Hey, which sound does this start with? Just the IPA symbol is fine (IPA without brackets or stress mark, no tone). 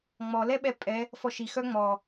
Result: ŋ͡m